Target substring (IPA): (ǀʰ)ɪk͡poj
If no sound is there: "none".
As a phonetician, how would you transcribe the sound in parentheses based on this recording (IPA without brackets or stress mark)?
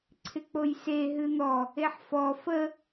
ǀʰ